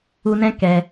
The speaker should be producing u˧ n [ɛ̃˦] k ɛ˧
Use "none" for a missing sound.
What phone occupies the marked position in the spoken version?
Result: ɛ̃˦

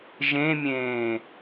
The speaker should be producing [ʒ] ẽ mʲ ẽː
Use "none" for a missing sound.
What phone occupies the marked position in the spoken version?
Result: ʒ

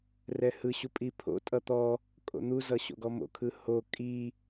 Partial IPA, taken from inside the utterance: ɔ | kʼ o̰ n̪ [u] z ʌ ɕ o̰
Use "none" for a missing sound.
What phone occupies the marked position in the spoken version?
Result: u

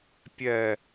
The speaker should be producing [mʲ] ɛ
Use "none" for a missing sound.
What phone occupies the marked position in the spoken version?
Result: pʲ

